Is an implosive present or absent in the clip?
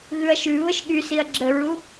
present